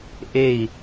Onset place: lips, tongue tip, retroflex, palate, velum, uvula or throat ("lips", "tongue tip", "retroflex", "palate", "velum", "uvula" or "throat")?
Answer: throat